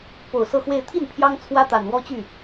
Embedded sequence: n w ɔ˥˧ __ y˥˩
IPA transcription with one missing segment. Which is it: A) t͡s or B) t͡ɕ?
B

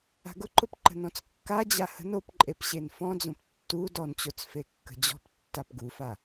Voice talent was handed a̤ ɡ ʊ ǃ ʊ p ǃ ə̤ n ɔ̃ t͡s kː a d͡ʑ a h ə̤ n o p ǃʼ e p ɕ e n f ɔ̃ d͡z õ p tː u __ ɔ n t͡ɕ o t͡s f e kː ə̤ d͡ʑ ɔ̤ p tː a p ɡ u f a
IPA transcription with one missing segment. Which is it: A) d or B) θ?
A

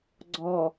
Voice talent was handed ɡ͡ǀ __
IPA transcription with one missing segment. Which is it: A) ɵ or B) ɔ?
B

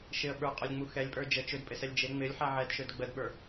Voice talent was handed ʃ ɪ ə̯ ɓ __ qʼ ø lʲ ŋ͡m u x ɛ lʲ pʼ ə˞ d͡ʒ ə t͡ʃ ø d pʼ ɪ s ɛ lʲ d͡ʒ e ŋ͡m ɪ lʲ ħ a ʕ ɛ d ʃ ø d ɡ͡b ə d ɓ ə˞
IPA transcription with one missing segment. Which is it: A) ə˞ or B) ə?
A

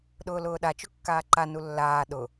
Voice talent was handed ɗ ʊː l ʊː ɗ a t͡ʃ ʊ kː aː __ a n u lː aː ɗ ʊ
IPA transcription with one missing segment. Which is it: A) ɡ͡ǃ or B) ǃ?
B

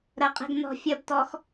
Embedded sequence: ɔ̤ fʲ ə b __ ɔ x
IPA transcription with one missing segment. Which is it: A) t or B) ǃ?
A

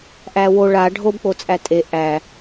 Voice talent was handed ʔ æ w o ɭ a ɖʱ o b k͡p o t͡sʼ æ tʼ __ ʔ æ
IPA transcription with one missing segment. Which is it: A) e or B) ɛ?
A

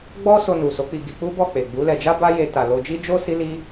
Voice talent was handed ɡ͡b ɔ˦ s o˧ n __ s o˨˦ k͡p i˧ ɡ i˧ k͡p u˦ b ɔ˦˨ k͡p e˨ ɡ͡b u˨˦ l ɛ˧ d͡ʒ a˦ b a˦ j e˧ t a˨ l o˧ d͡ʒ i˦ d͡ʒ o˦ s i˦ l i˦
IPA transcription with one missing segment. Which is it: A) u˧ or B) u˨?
B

